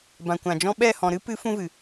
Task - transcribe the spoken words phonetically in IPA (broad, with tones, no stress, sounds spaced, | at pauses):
b ã˨ kʷ ã˨ d͡ʒ ɔ̃˦ ɓ ɛ˦˨ h ɔ̃˨ ɾ ɨ˦ p ɨ˨˦ f ũ˦ v ɨ˨